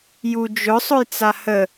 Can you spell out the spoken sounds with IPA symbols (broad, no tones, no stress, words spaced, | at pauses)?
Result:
ju d͡ʒʊ sˤʊjt͡sahə